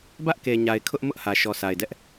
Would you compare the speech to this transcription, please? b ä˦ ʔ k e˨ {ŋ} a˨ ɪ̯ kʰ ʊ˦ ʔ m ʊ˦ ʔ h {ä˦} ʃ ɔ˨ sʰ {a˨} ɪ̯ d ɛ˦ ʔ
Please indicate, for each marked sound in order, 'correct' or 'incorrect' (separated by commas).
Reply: incorrect, incorrect, correct